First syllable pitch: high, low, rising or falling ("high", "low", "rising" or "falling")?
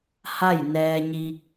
falling